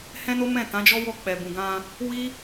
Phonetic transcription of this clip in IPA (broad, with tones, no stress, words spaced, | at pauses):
hɛ̃˦no˦mɛ̃˦˨ tã˨˦d͡ʒɔ˦wɔ˦˨ k͡pɛ˨bũ˨ɡã˧ | wi˦